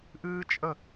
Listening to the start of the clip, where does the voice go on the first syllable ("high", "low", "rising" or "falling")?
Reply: high